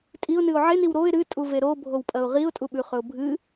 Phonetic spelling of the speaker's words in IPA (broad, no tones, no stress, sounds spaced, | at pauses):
tʼ i ʊ̯ n ɨ ʊ̯ ʕ e n i w ɾ o ɪ̯ ɾ ɨ tʼ u v e ɾ o bʱ o w pʼ ɐ ʊ̯ ʁ i ʊ̯ tʼ u ɓ ʉ χ ɵ ʊ̯ bʱ ɨ